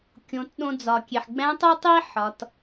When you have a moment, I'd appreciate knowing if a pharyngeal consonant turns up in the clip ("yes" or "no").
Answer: yes